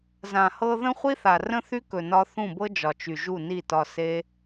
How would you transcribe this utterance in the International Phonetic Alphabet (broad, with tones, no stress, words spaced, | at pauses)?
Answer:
zã˨hɤ˧ ðə̃˦χʷi˦θa˨ rə̃˦θy˦kɵ˨nɒ˧ θũ˦˨bɤ˦d͡ʒɒ˨ t͡ʃy˨ʒu˦˨ni˦˨ tɒ˧se˦